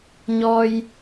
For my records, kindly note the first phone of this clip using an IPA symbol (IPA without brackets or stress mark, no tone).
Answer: ɲ